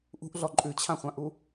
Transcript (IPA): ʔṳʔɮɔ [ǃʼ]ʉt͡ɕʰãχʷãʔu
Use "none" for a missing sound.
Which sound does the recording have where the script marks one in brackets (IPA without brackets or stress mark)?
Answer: ǃʼ